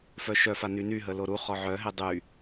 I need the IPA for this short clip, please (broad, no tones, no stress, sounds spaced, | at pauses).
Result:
f œ ʃ œ f a n y n y ɦ ə l o ɾ u χ ɔ ʕ œ ɦ e dˤ y